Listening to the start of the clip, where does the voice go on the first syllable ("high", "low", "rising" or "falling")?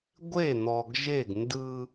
falling